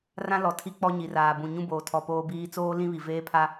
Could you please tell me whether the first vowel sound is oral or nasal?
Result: nasal